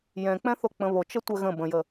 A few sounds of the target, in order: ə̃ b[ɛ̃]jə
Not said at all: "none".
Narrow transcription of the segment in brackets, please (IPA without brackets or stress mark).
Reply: ə̃